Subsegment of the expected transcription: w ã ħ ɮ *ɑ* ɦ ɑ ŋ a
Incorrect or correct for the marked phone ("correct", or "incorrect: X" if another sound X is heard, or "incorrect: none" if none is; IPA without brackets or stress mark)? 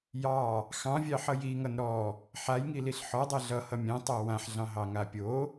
incorrect: ɑ̃